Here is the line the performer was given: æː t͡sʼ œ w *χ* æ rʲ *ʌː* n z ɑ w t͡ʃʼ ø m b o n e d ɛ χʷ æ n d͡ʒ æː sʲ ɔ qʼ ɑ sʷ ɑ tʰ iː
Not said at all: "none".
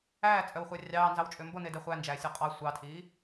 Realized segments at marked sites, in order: χʷ, ɑː

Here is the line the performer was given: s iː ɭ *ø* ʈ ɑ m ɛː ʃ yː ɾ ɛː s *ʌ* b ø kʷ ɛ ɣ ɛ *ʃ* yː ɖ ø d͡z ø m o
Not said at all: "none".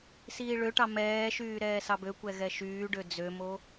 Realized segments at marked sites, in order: ø, ɑ, ʃ

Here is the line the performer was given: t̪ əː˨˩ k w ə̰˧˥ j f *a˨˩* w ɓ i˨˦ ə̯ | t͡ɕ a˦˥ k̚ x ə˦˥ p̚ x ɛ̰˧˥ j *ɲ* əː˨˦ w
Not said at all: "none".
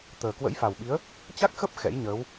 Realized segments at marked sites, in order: a˨˩, ɲ

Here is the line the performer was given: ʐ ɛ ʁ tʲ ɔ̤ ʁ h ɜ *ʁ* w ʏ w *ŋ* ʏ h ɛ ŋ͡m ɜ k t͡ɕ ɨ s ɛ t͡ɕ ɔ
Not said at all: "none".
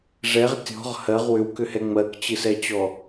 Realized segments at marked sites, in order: ʁ, k

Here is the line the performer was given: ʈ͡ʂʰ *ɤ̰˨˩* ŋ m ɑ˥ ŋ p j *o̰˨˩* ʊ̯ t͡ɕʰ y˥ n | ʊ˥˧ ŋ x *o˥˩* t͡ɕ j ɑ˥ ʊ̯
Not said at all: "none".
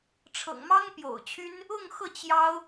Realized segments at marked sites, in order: ɤ̰˨˩, o̰˨˩, ɤ˥˩

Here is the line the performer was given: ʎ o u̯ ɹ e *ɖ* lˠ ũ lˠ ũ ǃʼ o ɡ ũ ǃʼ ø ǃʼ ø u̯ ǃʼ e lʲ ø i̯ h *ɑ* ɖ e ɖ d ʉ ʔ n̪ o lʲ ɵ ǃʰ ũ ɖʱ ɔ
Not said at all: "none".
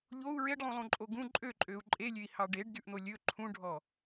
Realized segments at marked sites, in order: ɖ, ɑ

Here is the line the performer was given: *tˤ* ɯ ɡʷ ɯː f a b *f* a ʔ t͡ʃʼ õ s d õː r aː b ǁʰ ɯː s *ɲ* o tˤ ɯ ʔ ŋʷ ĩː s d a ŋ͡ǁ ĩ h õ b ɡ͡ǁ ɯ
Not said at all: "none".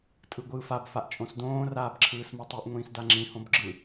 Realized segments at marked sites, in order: tʼ, f, m

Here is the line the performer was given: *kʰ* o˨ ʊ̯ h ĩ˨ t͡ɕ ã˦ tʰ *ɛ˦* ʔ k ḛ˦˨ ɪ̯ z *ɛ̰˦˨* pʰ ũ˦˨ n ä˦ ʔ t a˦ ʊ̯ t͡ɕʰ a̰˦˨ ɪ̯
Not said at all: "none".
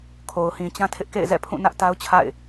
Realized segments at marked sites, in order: kʰ, ɪ˦, ɛ̰˦˨

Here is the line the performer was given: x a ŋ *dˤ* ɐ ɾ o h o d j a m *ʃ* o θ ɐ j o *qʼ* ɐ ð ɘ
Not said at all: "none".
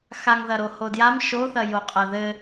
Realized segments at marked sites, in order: ð, ʃ, qʼ

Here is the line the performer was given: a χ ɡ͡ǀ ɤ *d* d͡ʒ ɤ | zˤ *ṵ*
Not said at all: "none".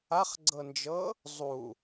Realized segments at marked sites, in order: n, u

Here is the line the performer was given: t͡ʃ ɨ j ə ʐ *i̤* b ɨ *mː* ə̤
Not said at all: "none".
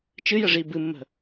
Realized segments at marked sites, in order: i, mː

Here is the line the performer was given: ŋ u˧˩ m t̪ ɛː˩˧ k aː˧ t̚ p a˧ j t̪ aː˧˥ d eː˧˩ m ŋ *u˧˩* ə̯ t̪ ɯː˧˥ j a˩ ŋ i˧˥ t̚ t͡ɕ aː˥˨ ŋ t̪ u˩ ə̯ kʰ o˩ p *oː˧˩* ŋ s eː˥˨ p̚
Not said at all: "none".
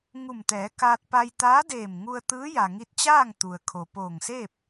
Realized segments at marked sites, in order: u˧, oː˧˩

